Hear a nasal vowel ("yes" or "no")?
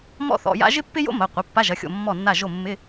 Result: no